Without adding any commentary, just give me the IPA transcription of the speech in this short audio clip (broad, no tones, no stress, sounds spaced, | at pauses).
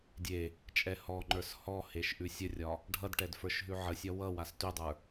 dʲ e | t͡ʃʼ ɛ h ɔ ŋ͡ǃ ə˞ s h ɔ h e ʃ ʔ ʉ sʲ ə rʲ ɒ | ɖʱ ʌ d ʈ ɛ d f ə˞ ʃ ɦ ʉ ʕ ə sʲ ɒ w ʌ w a s t ʉ dˤ ə˞